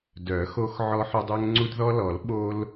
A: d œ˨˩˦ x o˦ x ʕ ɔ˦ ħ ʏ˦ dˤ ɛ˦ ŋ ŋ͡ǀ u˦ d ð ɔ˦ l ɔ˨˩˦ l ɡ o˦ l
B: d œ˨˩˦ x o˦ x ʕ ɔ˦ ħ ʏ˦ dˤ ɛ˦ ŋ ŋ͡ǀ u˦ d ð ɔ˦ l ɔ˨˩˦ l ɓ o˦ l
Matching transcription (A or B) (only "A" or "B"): B